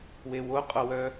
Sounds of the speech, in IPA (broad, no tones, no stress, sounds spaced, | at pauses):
w e w o qʼ o w œ